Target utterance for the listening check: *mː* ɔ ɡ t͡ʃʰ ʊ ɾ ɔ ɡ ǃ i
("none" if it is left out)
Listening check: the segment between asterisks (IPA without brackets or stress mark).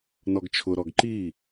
n